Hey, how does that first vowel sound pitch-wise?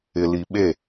low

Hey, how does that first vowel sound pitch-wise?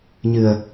low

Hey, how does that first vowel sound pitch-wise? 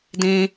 low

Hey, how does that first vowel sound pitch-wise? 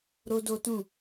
high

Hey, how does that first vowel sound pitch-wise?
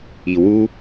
low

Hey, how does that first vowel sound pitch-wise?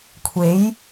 rising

